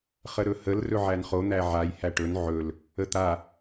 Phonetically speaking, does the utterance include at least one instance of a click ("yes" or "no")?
no